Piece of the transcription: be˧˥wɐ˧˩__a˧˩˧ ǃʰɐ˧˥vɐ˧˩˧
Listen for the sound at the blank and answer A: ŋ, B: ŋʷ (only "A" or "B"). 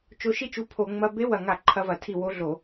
A